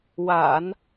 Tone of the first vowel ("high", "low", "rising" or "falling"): low